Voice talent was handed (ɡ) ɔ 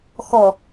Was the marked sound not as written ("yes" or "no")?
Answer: yes